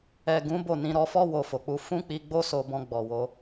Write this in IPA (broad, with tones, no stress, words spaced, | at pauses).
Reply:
ɛ˨ ɡũ˨˦ bo˦˨nĩ˧ ɾɔ˧fɔ˦ wo˧fo˨k͡pu˧ fũ˦k͡pi˧ɡ͡bo˦ so˧bɔ̃˧ ɡ͡bɔ˨wo˧